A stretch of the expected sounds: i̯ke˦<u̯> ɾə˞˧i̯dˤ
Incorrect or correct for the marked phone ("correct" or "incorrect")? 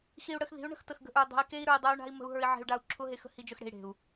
incorrect